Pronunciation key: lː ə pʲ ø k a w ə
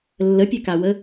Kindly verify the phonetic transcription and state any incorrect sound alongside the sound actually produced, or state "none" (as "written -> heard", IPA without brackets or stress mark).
none